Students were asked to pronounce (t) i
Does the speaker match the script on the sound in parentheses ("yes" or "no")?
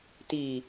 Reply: yes